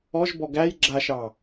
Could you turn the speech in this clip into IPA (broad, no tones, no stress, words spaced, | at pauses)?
ɔʒbɔ ɡæj ɡ͡ǁaʃɑ